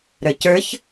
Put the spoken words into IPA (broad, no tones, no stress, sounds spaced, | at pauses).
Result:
ɾ ə˞ c ə˞ ç